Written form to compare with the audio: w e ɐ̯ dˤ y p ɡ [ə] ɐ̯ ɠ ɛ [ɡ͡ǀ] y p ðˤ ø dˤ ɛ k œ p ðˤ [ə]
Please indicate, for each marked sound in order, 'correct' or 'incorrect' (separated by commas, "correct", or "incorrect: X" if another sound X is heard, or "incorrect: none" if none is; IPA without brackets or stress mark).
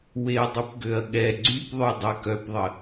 incorrect: ø, correct, correct